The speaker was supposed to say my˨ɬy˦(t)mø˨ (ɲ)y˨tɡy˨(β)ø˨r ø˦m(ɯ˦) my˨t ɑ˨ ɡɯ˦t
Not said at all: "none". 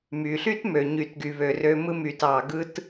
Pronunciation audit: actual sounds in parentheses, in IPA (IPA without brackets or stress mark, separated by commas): t, ɲ, β, ɯ˦